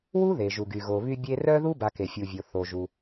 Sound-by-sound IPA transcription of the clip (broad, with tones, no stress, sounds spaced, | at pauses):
w u˥ ð e˩ ʒ u˩ ɡ y˩ ɣ o˨ β y˦ bʲ e˦ r œ˥ ð u˥ b a˨ k e˩ fʲ u˩ vʲ o˩ θ o˩ ʒ u˩